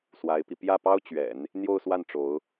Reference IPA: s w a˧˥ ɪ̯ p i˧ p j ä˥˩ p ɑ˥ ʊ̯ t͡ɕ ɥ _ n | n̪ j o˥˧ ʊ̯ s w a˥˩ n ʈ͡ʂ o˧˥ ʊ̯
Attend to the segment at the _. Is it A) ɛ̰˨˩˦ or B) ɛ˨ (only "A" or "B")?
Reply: A